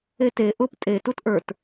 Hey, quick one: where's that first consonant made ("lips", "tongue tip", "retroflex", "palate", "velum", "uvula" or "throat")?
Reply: tongue tip